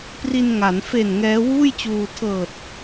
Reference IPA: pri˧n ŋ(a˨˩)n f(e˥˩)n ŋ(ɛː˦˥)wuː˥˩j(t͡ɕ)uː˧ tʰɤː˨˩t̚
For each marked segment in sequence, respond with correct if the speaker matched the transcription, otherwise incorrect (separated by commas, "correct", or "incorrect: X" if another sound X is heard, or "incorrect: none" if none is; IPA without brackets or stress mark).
incorrect: a˩˦, incorrect: e˨˩, correct, correct